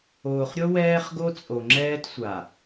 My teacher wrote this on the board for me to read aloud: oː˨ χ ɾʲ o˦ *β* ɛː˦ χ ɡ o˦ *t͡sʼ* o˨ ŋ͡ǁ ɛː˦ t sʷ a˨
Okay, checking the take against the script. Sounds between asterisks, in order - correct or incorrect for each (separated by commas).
incorrect, correct